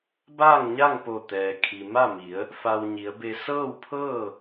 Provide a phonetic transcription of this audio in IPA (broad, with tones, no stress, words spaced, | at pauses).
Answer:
baː˥˨ŋɲa˥˨ŋpo˧˩ t̪ɛː˩kʰi˩ ma˥˨mi˩˧ə̯ | fa˧wɲi˩˧ə̯be˧ sɤː˥˨wpʰɤː˥˨